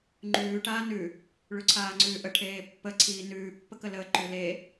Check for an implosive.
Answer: absent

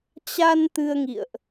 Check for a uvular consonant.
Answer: absent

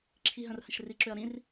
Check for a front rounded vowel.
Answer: present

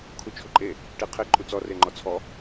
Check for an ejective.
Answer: present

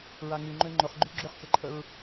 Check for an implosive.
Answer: absent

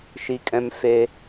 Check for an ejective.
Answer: present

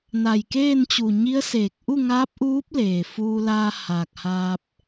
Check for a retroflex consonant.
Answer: absent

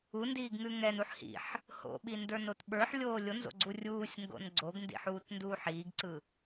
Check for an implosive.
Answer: present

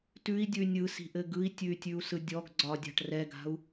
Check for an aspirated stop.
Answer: absent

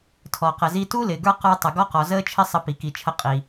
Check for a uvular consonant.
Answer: present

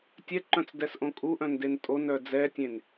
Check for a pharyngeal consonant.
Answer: absent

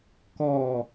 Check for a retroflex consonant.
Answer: absent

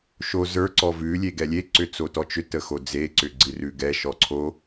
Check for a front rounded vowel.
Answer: present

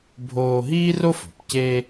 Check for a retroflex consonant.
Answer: absent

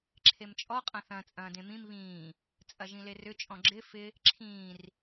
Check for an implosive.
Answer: absent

